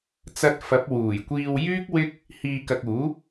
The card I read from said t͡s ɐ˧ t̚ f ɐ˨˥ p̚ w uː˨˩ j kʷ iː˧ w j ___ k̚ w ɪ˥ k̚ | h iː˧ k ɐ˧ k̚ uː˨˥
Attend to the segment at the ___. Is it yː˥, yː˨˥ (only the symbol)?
yː˥